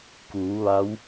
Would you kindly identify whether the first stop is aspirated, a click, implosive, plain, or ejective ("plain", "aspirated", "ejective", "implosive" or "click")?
plain